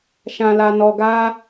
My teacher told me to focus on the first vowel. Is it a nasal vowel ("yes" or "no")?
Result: yes